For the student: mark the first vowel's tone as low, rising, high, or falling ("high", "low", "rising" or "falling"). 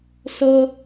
high